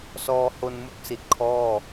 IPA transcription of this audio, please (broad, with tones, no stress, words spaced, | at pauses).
sɔː˧ho˧nmu˦˥k̚si˨˩t̚ kʰɔː˥˩